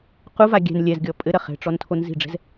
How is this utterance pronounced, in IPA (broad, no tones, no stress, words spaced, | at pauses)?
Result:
quva ɡʲɛ̤n lʲɛzɡʲɔ pʼɘɾɐ χɛ̤ʈ͡ʂɔn tʰonzi̤ɖ͡ʐɛ̤z